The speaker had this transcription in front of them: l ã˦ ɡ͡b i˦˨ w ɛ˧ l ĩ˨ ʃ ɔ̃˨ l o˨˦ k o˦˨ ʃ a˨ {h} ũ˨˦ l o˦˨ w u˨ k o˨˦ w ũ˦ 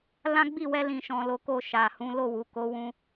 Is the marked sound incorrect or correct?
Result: correct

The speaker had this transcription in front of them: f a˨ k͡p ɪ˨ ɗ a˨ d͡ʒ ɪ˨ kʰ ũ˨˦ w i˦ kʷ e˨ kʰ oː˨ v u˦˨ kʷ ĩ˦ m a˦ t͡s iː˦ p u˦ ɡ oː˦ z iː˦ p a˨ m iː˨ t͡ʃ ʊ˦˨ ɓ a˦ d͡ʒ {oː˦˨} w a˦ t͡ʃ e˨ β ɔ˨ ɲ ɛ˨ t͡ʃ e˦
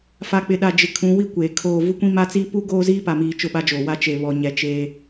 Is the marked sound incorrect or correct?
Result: incorrect: oː˨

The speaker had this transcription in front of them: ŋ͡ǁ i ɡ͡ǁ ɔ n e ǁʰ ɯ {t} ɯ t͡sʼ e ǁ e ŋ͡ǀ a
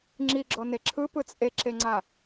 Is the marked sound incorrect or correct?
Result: incorrect: p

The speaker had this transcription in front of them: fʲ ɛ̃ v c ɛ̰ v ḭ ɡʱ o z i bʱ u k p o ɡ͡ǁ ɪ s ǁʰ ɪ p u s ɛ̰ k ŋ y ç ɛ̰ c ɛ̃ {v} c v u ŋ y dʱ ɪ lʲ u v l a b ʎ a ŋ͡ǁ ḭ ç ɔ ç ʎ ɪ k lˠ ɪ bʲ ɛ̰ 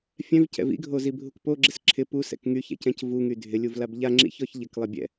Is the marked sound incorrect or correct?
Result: incorrect: none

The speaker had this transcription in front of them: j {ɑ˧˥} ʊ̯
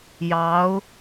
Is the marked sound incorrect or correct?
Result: correct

